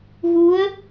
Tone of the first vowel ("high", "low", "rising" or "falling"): rising